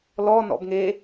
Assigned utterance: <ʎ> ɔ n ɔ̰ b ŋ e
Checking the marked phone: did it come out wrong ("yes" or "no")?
yes